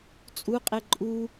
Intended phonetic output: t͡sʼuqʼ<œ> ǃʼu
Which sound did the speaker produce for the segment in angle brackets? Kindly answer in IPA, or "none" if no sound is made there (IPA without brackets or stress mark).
ɛ